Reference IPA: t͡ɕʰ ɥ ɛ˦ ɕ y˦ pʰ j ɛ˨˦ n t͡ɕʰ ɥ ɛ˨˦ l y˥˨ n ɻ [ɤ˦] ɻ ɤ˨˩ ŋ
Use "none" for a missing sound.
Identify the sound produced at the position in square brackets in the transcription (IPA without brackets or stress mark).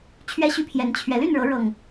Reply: ɤ˨˦